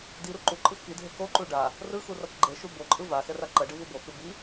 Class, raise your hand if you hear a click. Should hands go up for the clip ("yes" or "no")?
yes